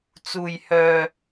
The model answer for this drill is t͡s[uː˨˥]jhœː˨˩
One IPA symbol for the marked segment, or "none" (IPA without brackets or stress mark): uː˨˩